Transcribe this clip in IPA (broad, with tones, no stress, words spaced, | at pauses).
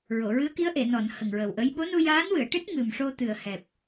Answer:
ɹo˨˩˨ ɹɨ˧˥ə̯ki˧˥ə̯ʔe˨˩˨ nɔ˨˩˨n hə˨˩ŋɹə˨˩wʔə˧˥j ɓo˧˥nu˧ jaː˧˥nwɨ˨˩˨ə̯ʈɨ˦˥t̚ ŋɨ˨˩mʂo˧ t̪ɨ˨˩ə̯hɛ˨˩p̚